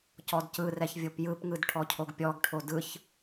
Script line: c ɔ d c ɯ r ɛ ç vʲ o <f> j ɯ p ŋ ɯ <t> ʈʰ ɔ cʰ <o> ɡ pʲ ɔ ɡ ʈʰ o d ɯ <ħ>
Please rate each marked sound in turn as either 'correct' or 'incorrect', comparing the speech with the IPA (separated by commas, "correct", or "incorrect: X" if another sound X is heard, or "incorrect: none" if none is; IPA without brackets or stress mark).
incorrect: p, incorrect: d, correct, incorrect: ç